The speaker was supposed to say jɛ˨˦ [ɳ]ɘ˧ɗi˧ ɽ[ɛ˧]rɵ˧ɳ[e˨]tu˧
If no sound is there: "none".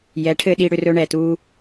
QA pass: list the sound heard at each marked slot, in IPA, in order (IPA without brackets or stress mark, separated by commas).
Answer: ʈʰ, ʏ˧, ɛ˨